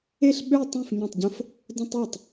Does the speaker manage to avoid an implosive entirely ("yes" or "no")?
no